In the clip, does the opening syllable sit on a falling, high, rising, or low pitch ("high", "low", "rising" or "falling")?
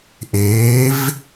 rising